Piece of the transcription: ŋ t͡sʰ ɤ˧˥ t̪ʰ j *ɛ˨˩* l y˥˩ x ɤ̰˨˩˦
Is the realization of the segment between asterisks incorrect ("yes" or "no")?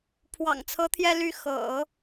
yes